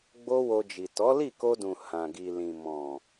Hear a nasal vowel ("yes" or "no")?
yes